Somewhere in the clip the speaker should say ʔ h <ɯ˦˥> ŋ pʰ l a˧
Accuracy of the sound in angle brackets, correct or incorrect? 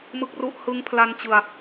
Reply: correct